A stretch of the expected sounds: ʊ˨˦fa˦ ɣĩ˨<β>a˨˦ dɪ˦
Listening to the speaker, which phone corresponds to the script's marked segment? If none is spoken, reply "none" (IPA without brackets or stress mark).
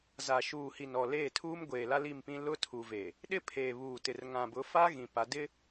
p